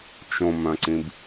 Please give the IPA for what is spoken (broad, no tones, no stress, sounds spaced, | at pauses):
t͡ʃ õ m œ̃ ǀ ĩ b